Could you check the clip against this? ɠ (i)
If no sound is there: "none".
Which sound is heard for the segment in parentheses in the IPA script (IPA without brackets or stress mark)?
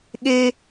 e